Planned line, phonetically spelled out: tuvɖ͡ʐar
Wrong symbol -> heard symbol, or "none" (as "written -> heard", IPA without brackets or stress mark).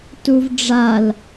r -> l